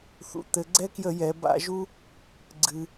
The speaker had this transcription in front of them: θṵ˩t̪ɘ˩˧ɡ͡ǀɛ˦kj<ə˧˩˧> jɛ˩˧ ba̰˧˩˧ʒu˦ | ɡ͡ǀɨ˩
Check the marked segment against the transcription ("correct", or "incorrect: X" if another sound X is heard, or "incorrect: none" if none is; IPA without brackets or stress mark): correct